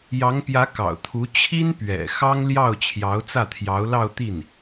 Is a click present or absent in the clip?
absent